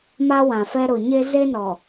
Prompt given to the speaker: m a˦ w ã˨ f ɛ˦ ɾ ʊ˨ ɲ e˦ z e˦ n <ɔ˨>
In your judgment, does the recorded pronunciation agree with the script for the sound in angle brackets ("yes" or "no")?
yes